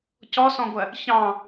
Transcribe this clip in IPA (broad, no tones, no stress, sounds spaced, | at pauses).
c ɔ s ɔ̃ ɡʷ ɜ | ç ɑ̃